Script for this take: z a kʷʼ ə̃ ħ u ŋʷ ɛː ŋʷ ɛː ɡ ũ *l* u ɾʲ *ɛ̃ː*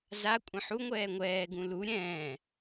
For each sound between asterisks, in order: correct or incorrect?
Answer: correct, correct

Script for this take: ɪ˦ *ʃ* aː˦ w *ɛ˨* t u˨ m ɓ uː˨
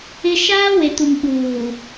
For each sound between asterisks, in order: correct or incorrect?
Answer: correct, incorrect: e˨

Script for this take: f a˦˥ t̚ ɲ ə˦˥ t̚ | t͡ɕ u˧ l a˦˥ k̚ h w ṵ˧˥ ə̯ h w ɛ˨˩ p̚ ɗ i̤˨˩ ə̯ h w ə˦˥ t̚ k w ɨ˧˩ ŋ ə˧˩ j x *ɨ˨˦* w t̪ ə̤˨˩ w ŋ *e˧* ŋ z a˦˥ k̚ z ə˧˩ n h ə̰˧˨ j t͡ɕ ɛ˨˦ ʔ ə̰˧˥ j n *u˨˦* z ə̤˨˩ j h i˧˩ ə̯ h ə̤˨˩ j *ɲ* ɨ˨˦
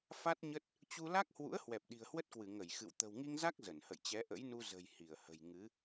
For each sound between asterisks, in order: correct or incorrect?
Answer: incorrect: ɨ̰˧˨, incorrect: i˧, incorrect: u˧, incorrect: ŋ

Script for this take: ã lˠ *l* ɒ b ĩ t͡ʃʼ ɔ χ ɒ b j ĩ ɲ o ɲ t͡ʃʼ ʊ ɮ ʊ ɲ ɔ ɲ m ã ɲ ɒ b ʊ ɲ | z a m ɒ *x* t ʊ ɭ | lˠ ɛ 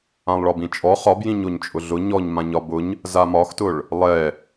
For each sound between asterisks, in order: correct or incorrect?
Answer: incorrect: ɭ, correct

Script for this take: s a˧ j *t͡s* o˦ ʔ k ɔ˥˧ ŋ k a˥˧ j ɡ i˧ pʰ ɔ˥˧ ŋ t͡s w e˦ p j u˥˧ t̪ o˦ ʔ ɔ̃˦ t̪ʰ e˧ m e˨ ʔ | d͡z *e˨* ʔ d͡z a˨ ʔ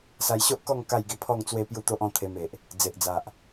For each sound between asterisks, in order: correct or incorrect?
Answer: incorrect: ɕ, correct

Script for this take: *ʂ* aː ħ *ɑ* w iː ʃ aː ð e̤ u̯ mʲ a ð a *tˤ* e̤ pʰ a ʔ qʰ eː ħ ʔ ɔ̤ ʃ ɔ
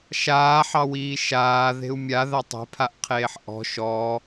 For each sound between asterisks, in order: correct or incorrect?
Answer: incorrect: ʃ, correct, correct

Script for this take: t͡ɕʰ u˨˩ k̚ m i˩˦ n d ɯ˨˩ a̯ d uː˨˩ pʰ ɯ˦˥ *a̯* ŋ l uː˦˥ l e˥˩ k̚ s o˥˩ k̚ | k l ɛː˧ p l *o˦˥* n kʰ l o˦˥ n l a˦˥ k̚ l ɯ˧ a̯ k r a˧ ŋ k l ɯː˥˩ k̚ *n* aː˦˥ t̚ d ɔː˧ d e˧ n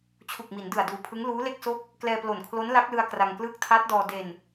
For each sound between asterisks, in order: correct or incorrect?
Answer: incorrect: none, incorrect: o˨˩, incorrect: tʰ

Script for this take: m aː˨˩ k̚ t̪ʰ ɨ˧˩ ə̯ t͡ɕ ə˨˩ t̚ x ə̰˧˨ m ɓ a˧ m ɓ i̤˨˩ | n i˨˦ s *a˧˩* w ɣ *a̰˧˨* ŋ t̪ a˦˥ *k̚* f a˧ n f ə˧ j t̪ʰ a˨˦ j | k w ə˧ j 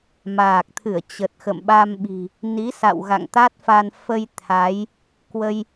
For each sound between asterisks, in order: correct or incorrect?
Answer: incorrect: a̰˧˨, correct, incorrect: t̚

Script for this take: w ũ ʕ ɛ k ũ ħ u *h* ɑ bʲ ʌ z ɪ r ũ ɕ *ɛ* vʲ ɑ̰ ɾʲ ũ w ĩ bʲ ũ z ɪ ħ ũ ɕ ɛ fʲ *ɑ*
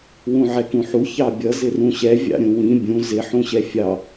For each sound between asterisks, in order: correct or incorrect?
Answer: incorrect: ç, correct, correct

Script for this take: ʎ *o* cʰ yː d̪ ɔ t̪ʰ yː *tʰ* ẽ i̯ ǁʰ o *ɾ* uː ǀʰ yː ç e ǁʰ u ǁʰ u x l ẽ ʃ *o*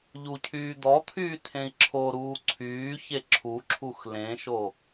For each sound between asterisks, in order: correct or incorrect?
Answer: incorrect: u, correct, correct, correct

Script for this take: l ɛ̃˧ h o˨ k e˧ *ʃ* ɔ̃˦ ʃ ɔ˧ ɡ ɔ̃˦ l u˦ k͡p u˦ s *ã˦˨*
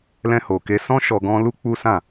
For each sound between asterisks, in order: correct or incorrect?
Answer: incorrect: s, correct

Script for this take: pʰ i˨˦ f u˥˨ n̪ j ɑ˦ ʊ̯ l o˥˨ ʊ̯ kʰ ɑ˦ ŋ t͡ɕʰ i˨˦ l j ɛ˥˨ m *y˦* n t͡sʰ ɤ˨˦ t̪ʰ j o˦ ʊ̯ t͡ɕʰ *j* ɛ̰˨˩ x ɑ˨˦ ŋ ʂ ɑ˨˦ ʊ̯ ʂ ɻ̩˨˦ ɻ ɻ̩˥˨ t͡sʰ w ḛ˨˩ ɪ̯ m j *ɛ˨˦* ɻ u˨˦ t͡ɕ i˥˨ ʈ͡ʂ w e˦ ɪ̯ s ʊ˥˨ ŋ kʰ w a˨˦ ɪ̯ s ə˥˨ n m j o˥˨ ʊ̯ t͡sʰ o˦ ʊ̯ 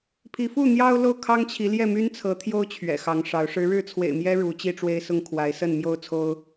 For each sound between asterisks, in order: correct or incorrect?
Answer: correct, incorrect: ɥ, incorrect: ɛ˦

